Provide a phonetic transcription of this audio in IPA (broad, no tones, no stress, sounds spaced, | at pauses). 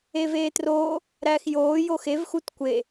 eː v eː t r oː | ɾ æː x j oː j o x e v x u t kʷ e